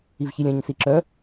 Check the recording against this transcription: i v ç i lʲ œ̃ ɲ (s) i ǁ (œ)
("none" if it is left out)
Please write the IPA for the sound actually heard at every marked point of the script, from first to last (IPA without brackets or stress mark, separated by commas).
s, œ